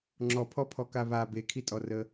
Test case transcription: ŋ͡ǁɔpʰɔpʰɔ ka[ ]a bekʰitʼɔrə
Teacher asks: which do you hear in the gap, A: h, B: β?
B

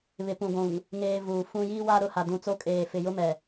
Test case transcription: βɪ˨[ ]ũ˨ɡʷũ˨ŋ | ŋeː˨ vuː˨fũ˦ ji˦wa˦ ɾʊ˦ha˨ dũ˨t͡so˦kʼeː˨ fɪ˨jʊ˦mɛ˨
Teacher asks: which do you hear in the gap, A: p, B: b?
A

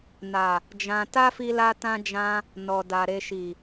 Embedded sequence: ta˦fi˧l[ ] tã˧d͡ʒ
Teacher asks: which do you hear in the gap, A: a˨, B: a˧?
B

